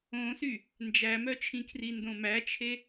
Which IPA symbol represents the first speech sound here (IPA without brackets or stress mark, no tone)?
õ